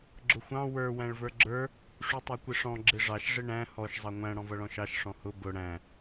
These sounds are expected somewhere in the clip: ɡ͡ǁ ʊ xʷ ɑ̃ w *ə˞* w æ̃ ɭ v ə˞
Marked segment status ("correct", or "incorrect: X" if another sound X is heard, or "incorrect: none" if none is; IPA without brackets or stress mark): correct